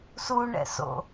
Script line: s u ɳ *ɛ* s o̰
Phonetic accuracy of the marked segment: incorrect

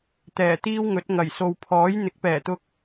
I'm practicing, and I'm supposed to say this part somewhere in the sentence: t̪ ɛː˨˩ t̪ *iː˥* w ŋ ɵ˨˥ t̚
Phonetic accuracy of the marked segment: correct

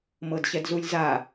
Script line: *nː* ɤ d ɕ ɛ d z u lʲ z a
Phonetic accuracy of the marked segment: incorrect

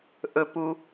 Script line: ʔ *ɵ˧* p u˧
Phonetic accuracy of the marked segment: correct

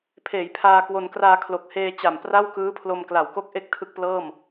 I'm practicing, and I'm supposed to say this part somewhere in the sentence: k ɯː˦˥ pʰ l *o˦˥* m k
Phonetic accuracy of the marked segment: incorrect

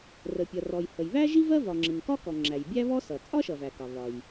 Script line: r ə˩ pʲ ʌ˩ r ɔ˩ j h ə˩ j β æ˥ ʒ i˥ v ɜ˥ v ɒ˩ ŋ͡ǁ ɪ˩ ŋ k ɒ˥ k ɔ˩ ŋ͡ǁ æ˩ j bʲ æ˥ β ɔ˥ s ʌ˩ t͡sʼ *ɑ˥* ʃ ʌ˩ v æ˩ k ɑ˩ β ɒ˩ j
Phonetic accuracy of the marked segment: incorrect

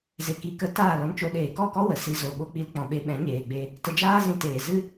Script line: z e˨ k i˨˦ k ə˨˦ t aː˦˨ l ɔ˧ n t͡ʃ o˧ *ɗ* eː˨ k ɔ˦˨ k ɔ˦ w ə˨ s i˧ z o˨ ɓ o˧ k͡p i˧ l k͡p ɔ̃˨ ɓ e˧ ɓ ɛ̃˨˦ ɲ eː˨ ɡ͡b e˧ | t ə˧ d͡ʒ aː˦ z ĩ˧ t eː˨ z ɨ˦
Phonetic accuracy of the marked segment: correct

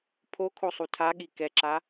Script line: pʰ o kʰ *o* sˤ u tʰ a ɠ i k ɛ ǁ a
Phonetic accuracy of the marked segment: correct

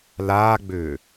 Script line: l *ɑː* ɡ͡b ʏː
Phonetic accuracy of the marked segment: incorrect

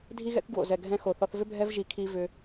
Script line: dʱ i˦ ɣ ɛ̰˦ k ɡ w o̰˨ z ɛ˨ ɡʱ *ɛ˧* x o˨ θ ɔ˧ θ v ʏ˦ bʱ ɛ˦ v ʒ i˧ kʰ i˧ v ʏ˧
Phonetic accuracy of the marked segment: incorrect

